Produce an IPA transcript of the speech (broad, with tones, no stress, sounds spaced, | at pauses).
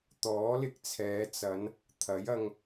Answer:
t̪ ɔː˨˥ l ɪ˧ k̚ t͡sʰ ɛː˨˧ t͡s ɐ˨˧ n | t̪ʰ ɐ˨˥ j ɐ˧ ŋ